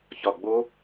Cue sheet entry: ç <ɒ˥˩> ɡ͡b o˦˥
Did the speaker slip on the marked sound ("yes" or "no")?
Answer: yes